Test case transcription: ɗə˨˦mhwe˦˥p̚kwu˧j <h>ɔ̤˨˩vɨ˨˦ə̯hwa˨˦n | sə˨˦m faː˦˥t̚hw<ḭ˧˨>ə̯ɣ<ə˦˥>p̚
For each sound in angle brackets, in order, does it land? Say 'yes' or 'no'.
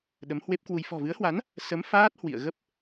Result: no, yes, yes

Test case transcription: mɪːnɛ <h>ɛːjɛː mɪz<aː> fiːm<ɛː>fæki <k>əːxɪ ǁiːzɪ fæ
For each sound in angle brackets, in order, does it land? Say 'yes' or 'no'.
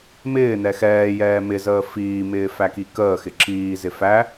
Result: no, no, no, yes

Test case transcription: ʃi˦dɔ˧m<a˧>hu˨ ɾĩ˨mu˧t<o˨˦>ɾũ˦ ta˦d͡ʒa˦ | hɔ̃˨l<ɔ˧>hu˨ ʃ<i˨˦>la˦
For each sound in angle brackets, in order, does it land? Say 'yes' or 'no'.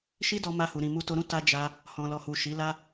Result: yes, no, no, yes

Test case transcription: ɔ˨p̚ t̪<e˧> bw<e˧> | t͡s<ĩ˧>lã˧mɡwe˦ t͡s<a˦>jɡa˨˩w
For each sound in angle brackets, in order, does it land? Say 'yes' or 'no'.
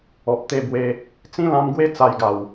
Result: yes, yes, no, no

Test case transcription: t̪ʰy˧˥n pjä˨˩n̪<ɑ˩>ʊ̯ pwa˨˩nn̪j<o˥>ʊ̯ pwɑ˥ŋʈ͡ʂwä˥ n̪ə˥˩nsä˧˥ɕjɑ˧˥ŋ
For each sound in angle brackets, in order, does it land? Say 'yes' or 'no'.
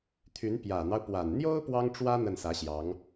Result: no, yes

